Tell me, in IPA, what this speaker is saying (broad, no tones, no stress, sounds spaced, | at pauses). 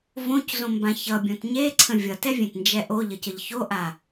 v õ c z õ m b ã ç ʌ bʲ õ t ɲ e ǀʰ ə̃ vʲ ʌ t ɛ vʲ ẽ t n d͡ʒ ɛ ʔ o ʎ ə c ə ʎ ç o ʔ a